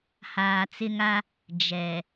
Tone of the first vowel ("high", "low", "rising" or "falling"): low